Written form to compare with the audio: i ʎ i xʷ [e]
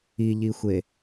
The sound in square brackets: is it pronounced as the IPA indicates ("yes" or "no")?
yes